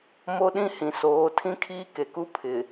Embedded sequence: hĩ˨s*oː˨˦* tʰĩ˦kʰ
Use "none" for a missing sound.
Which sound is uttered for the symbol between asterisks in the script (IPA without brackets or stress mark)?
oː˨˦